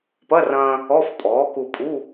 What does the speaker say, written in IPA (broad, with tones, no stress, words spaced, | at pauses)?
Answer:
pɐ˧˥˧rɐ̃ː˧ | ɔ˧˥˧fpʼɔː˩˥ ku˧pʼu˧˥˧